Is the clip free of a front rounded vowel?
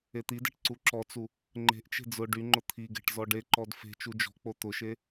no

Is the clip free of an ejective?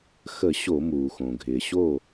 yes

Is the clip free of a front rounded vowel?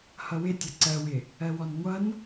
yes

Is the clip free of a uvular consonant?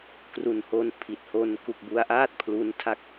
yes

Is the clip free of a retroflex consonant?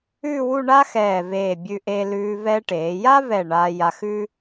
no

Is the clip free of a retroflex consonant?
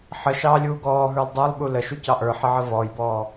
yes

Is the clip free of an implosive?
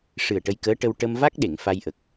no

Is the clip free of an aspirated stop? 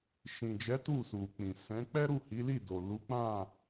yes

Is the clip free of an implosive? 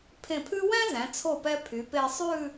yes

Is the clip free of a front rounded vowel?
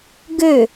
no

